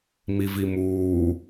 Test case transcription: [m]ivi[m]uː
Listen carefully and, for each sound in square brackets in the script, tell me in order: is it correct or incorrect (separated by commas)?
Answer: correct, correct